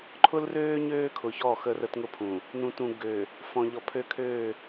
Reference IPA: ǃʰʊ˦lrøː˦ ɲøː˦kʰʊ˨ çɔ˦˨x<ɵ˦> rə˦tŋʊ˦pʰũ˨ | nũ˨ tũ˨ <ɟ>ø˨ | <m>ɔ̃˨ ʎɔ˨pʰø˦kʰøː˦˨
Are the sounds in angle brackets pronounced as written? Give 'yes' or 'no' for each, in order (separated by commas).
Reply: no, no, no